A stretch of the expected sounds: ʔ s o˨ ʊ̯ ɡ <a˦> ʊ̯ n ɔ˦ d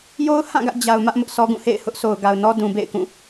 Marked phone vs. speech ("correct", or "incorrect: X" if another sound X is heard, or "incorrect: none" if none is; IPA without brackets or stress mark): incorrect: a˨